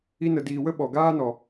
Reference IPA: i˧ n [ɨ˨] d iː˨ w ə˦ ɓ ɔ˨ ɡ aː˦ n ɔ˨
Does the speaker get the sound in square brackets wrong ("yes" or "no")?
yes